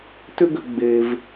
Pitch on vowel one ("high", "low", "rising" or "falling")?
high